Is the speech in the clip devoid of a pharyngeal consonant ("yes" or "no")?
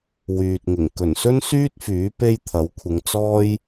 yes